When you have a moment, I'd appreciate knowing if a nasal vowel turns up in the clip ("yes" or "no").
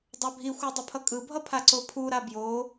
no